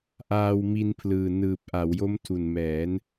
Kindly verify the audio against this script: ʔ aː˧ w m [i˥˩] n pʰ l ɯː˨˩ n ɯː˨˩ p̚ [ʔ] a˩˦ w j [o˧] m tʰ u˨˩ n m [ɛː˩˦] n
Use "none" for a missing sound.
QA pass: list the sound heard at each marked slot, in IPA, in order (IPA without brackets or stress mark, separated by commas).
i˧, ʔ, o˦˥, ɛː˩˦